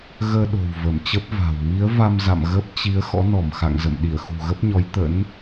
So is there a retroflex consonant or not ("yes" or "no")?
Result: no